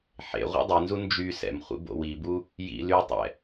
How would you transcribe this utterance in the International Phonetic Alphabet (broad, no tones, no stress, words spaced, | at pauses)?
ħḛ ʁʷḭdˤinzu nd͡ʒy sɛ̰mχʷḭ bo̰wibu | jḭ lytˤɛ̰